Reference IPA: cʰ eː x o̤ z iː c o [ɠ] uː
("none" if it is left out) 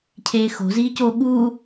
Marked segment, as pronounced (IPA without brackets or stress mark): ɠ